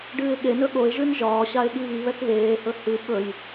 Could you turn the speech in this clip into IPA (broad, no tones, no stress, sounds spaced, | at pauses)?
ɖ ɨː ɪ̯ ɠ e n ɵ ɠ o ɪ̯ ʒ ʉ n ʒ ɒː ɕ a ɪ̯ ɠ i β i β ɛ k β eː h ɵ h ɨ ɓ ɵ j